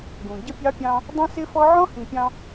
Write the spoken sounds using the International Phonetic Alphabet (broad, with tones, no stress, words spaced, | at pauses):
ɡũ˨ ɟə˦pʲɑ˦pʲɑ̃˦ | dˤĩ˦sɪ˦fɔ˦ ʕɔ̃˦hĩ˨pʲɑ̃˦